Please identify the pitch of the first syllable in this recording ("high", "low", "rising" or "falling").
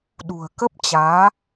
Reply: low